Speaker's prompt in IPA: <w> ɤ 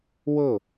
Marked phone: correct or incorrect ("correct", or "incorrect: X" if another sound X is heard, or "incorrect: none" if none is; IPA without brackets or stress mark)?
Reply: correct